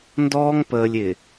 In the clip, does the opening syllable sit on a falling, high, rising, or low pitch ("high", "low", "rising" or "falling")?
high